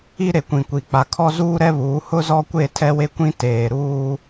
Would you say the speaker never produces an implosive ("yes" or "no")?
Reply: yes